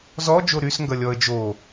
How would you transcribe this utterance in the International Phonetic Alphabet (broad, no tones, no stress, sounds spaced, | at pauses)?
z ɔ d͡ʒ o ɾ y s ŋ ɡ ʌ lʲ ɔ ə̯ d͡ʒ o